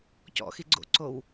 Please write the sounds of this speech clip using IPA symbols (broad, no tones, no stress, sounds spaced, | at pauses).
c ɔ̰ x i ɡ͡ǀ o̰ ǀ o w